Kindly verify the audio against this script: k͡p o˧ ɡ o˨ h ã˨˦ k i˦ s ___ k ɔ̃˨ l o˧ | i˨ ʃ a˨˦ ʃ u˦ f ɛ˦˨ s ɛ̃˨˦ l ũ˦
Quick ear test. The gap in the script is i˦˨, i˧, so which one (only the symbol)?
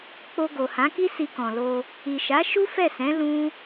i˧